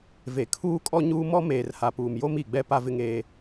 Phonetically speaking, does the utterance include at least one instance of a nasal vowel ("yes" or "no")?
no